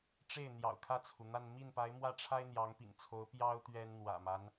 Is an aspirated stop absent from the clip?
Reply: no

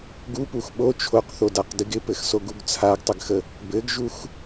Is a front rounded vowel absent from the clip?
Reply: yes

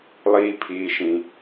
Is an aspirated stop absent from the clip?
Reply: no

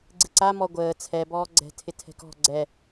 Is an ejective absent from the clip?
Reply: yes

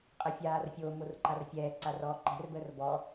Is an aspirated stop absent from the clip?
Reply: yes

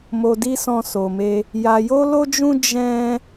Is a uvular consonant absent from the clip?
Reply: yes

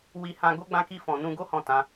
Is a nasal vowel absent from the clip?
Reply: no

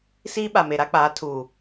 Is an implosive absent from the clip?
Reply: no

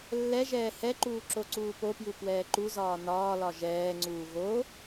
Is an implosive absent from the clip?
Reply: yes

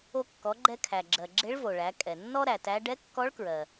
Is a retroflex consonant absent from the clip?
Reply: no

